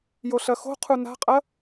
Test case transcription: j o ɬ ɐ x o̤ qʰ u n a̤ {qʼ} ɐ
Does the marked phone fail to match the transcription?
no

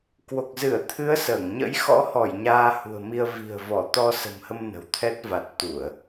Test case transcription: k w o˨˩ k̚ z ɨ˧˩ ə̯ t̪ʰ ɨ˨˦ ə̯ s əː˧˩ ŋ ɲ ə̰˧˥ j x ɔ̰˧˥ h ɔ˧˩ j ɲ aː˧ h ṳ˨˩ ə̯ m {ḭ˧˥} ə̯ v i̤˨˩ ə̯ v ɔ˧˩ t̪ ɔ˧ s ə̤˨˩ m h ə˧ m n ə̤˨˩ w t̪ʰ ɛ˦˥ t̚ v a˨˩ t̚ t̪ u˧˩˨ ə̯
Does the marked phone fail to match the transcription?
yes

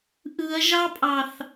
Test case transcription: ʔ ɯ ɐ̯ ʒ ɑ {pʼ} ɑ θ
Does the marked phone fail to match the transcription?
no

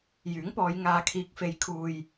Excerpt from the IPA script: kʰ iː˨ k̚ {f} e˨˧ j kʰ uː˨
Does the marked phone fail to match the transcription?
no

